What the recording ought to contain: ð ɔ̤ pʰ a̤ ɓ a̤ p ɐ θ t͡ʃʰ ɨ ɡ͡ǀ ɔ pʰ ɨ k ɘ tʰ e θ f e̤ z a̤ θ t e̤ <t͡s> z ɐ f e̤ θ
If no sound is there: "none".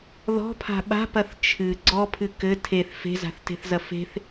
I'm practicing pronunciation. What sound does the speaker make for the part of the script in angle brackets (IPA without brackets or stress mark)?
θ